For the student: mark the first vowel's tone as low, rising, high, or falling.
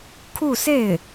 falling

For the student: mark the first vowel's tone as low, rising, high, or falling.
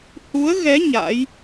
rising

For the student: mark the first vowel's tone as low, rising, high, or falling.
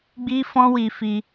high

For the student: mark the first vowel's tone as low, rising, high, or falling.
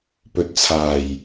rising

